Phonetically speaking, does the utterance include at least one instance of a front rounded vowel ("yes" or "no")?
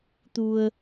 no